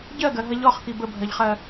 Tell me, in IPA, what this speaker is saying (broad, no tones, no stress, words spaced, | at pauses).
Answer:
ɟɜɡɜɦɐ ʎɔχki bəbʱɜʎχɜ